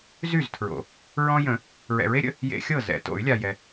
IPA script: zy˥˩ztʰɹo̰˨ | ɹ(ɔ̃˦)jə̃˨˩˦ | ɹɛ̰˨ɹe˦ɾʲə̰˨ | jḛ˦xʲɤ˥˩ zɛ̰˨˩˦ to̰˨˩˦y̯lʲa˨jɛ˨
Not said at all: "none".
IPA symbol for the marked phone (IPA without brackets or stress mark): ɔ̃˦